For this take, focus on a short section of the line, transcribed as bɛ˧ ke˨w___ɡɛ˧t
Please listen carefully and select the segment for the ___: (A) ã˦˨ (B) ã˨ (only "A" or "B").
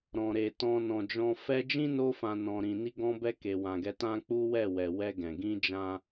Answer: B